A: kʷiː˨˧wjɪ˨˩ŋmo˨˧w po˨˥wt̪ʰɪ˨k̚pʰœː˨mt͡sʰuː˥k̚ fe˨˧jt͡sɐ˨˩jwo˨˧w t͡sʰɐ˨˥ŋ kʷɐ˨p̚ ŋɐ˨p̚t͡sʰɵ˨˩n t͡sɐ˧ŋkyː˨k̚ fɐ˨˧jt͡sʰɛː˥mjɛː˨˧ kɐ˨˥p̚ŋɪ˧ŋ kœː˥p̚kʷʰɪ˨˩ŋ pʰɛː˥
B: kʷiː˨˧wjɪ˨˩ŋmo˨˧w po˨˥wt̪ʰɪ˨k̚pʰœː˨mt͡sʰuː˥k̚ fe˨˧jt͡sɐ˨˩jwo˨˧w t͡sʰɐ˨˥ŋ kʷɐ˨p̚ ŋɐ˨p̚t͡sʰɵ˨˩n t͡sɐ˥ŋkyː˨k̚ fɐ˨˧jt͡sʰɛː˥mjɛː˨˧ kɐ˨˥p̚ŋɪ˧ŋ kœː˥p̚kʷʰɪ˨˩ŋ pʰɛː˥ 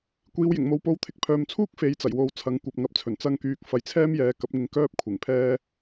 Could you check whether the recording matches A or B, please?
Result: A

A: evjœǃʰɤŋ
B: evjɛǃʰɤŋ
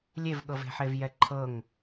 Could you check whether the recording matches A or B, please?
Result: B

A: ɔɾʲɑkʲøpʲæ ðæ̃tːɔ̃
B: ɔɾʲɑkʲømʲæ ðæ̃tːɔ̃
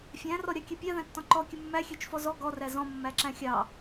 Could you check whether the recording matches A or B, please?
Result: A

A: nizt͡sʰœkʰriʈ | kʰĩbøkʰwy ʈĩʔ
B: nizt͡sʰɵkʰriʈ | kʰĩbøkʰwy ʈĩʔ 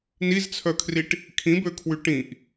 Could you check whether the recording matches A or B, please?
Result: A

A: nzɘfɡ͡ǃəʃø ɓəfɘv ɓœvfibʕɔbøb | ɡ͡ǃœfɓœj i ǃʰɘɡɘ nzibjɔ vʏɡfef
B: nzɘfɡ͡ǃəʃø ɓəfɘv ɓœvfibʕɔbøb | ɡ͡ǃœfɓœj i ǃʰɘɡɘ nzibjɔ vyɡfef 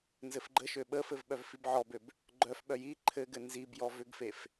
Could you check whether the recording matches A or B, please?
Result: A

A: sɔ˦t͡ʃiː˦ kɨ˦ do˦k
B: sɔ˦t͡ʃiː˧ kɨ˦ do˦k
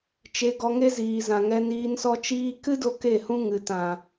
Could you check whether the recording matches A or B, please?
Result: A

